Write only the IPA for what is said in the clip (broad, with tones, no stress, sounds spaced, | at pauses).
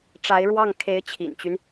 ʈ͡ʂ a˧˥ ɪ̯ ɻ w ɑ˥˩ ŋ kʰ e˧˥ ɪ̯ t͡ɕʰ ḭ˨˩ n t͡ɕ y˦ n